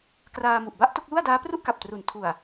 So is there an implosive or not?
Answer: no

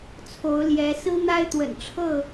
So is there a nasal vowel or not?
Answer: no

